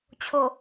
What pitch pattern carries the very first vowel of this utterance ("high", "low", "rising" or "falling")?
low